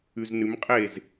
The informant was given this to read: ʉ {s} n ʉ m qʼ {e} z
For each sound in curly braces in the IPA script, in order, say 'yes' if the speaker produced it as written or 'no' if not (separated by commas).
no, yes